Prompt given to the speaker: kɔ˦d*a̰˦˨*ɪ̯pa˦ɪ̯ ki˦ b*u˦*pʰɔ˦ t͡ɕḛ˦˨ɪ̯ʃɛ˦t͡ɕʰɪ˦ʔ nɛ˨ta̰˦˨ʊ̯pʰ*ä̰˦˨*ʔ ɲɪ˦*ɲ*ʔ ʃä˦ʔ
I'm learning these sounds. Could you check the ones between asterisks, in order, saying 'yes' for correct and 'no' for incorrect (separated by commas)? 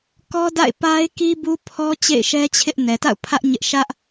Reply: yes, yes, no, no